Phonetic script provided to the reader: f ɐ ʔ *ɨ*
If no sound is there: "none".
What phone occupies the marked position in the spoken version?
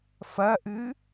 ɨ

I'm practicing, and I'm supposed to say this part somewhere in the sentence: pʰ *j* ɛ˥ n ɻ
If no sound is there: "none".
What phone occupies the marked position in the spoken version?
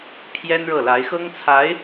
j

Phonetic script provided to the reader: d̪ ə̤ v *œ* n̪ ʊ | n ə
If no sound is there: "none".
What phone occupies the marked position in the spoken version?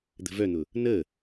œ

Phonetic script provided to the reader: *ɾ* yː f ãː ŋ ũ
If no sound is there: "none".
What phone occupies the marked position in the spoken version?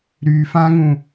ɾ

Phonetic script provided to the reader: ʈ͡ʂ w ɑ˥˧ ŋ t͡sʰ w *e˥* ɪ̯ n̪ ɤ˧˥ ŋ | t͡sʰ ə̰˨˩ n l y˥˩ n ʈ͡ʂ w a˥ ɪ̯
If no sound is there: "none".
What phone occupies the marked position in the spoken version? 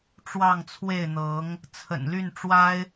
e˥˩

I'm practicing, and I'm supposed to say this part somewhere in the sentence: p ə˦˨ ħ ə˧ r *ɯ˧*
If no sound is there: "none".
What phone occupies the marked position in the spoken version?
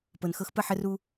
u˧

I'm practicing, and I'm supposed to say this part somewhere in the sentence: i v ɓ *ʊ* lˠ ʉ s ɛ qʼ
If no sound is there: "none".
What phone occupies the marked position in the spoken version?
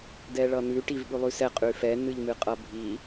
ʉ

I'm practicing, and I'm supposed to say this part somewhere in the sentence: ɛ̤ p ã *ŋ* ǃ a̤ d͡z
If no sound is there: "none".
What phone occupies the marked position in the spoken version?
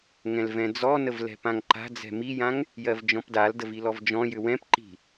ŋ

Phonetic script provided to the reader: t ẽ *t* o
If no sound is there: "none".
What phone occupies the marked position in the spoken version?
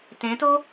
t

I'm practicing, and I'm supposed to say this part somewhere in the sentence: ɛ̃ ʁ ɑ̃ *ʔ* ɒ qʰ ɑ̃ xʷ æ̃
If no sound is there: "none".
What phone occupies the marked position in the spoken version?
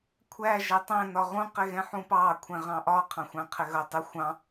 ʔ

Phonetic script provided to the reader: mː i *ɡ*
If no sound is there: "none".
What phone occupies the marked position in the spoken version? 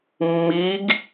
ɡ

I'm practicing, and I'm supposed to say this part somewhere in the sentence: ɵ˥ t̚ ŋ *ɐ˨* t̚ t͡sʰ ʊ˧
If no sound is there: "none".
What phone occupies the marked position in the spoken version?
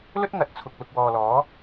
ɐ˨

